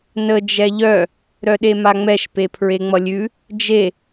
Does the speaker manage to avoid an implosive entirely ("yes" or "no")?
no